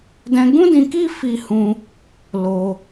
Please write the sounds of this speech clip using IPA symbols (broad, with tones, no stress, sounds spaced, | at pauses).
d ɛ̃˧ ɡ ũ˦ d ĩ˧ k i˦ f i˦ h ũ˦ | l o˦